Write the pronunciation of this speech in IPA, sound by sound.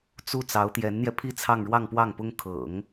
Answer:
t͡s u˥˩ t͡s ɑ˧˥ ʊ̯ t̪ j ɛ˧˥ n n̪ j ɛ˧ pʰ i˥˧ t͡sʰ ɑ˥˧ ŋ ɻ w ɑ˥˧ ŋ p w ɑ˥˩ ŋ p ʊ˥ ŋ kʰ ɤ̰˨˩˦ ŋ

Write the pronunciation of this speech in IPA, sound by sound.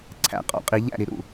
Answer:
ǀʰ æ̰˨˩˦ qʼ ɔ̰˨ qʼ i˨˩˦ ʎ æ̰˥˩ ɾ i˨ ɾ ṵ˥˩

